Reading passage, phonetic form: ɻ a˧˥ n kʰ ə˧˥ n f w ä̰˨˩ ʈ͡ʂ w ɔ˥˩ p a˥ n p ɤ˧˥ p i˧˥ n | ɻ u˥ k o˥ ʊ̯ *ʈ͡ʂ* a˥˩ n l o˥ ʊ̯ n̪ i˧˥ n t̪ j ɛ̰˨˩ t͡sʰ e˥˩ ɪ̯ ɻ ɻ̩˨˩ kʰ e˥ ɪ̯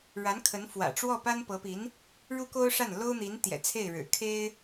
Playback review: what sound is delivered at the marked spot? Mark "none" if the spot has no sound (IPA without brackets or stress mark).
ʂ